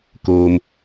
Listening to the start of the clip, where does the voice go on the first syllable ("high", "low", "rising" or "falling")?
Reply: low